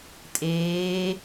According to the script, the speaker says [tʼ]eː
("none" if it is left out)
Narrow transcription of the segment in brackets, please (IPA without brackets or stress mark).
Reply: tʼ